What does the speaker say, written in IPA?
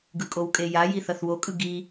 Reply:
ɡɯkʼowkʼeja jiθʌθwo kʼɯɡi

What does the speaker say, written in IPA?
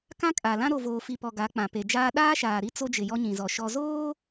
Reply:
kã˦kʼa˨lã˦ ɾo˨voː˨fi˨ pɔ˨ ɡa˨˦k͡pã˨ pe˨d͡ʒaː˦ ɗaː˦ʃaː˨ɾi˦ t͡so˦d͡ʒɪ˨ jɔ˦ɲĩ˨zɔ˨ ʃɔ˨zoː˦

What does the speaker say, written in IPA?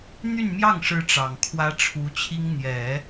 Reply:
n̪y˥˧nmjɑ˥˩ŋʂɻ̩˧˥ ʈ͡ʂɑ˨˩ŋkʰwä˥ʈ͡ʂʰu˧˥t͡ɕʰi˥ŋ n̪jɛ˨˩˦

